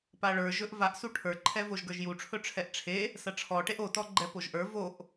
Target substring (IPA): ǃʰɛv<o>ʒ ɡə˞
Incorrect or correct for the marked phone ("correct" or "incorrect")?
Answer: correct